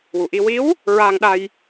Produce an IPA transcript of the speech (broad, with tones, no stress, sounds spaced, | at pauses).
w u˨˩ ʔ i˧ w i˧˥ w | ɹ aː˧ ŋ ɗ a˧ j